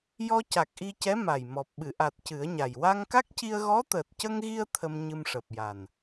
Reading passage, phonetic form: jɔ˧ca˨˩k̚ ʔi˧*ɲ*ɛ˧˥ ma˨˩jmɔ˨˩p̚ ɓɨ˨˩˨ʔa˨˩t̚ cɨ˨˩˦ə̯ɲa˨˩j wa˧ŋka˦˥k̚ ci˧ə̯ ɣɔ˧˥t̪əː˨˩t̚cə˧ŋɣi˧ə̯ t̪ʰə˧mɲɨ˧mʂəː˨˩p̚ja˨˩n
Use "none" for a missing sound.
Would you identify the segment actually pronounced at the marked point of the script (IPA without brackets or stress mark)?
c